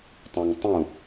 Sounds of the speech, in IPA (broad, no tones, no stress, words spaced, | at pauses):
tˤãŋtˤũ